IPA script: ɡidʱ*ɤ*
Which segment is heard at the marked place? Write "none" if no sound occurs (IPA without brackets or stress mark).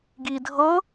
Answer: ɤ